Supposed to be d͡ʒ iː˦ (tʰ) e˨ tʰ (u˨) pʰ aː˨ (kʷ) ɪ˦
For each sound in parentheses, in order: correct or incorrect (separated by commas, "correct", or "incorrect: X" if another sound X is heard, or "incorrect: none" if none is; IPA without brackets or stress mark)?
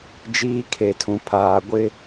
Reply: incorrect: kʰ, incorrect: ũ˨, incorrect: ɡʷ